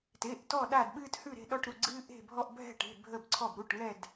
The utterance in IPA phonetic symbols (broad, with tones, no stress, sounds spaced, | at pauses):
t e˩˧˩ ʔ t ɔ˦˨ ɗ a˦˨ d ɓ ɨː˦ t h ʉ˦˨ ɾ e̤˦˨ ɗ ɔ˦˨ ʈ ɾ u˩˧˩ ɡ͡ǀ ɨː˦ ʔ e̤˦˨ bʱ ɔ˦˨ ʔ bʱ ɛ̤˦˨ ʈ e̤˩˧˩ bʱ ə˦˨ b ǀʰ ɔ˦˨ b ɾ u˩˧˩ ʈ ŋ ɛ˦˨ d